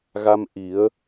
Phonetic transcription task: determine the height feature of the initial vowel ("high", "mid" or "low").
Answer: low